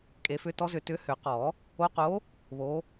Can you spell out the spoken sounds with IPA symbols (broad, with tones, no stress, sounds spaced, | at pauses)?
kʼ e˨˩˦ f ʏ˨˦ t ɔ˨˦ z ʏ˨˩˦ t ʏ˨˦ h ʏ˨˩˦ q ɔ˨˩˦ | o˨˦ q o˨˦ | β o˨˦